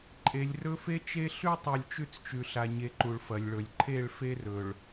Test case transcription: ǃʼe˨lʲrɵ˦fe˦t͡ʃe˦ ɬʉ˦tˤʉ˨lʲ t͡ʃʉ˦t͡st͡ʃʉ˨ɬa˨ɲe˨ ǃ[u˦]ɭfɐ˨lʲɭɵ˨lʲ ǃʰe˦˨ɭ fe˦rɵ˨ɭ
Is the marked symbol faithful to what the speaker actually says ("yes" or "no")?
no